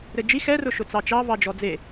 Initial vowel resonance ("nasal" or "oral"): oral